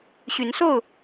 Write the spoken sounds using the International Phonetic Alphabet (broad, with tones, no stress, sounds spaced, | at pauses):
ɕ y˨˦ n s o˥˨ ʊ̯